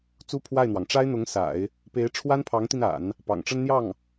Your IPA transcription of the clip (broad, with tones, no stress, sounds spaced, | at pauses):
t͡s u˥ pʰ w a˥˩ ɪ̯ n̪ w ɑ˩ ŋ ʈ͡ʂ a˥ ɪ̯ n̪ ʊ˧˥ ŋ s a̰˨˩˦ ɪ̯ | p e˧˥ ɪ̯ ʈ͡ʂʰ w a˥ n pʰ ɑ˧˥ ŋ t̪ i˧ n a̰˨˩˦ n | p ɑ̰˨˩ ŋ ʈ͡ʂ ə˥ n n̪ j ɑ˥˩ ŋ